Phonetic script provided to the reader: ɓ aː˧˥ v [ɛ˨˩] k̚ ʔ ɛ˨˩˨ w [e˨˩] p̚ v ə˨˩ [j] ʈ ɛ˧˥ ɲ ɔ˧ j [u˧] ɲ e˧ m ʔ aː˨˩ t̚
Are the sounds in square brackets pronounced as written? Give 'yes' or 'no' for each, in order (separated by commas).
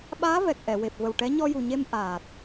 yes, yes, no, no